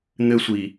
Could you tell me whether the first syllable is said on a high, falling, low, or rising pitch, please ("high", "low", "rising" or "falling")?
high